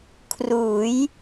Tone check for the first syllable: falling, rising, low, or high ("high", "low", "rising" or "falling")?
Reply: rising